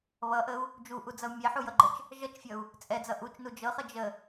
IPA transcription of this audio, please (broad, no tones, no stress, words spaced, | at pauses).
βʌʔəu̯ | d͡ʒuʔud͡zʌu̯ mʲɛħujʌɡ͡ǃət͡ʃ | ʒʌt͡ʃfʲʌu̯ | t͡sʼɛd͡zʌ ʔut͡ʃnu d͡ʒɤχə d͡ʒə